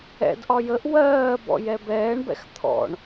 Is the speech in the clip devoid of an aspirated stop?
no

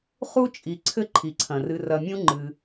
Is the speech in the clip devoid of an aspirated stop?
no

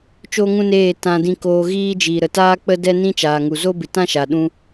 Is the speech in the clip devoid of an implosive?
no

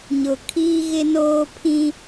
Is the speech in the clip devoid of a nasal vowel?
no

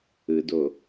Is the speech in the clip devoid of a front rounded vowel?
yes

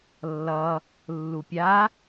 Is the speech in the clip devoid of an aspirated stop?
yes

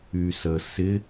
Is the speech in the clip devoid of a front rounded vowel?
no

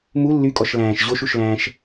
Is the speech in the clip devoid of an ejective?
no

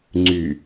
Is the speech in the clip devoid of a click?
no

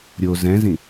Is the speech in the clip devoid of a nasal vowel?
no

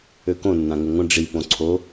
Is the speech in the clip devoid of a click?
no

